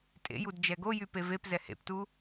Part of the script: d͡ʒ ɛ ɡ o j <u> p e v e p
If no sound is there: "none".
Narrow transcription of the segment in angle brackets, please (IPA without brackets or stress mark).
y